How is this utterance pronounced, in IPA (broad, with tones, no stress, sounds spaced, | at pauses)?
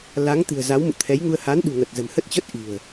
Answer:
l a˨˦ ŋ t̪ ɨ̤˨˩ ə̯ z a˨˦ w m ṵ˧˨ t̪ʰ ɛ˨˦ j ŋ u˧ ə̯ h a˨˦ n ɗ ṳ˨˩ ŋ ə˨˩ t̚ z ə̤˨˩ m h ə˦˥ t̚ t͡ɕ ə˦˥ t̚ ʔ i̤˨˩ ə̯